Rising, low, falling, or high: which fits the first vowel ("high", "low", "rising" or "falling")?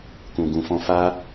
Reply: low